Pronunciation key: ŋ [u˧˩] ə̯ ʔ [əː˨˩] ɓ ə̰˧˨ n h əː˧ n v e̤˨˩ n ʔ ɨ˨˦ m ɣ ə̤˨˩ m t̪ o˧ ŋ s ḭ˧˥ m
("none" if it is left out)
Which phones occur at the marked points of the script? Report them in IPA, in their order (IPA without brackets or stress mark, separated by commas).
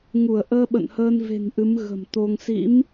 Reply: u˧˩, əː˧